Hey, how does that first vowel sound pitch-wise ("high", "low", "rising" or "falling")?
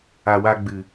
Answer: low